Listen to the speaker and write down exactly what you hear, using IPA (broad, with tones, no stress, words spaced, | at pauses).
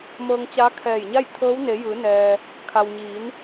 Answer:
mɤː˧ŋt͡ɕa˧˥ kʰɛː˧˩jɲa˥˨j t̪ʰɤː˧˥w ne˩˧jɯː˩˧nɛː˩ | kʰa˩wɲiː˩˧n